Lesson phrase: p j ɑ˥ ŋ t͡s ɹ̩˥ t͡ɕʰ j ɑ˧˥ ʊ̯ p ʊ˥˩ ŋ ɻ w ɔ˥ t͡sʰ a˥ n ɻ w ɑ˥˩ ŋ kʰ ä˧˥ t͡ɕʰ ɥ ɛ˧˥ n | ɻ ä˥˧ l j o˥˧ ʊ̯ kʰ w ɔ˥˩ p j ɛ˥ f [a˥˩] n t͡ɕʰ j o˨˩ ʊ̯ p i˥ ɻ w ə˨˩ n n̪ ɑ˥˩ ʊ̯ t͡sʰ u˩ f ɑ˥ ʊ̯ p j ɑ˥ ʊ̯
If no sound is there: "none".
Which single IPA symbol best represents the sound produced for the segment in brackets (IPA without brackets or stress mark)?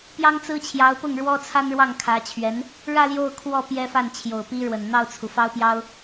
a˥˩